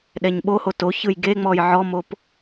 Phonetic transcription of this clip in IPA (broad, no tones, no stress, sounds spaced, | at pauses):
ɗ ɛ ɲ ɓ o h o t o ç ɯ j ɡ e ŋ͡m ɔ j ʕ ɔ m o p